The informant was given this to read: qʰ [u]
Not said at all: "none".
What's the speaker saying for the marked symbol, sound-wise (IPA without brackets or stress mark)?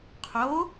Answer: o